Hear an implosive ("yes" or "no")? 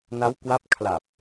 no